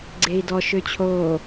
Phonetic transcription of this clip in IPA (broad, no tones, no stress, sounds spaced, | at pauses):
ɡ͡ǀ e i̯ d ɔ ʃ ø t͡ɕʰ oː